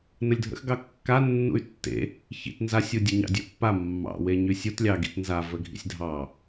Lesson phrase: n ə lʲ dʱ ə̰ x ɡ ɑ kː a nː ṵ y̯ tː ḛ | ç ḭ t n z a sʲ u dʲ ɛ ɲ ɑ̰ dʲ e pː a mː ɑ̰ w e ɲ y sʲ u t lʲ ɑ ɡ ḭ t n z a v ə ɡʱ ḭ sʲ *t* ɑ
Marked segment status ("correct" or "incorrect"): incorrect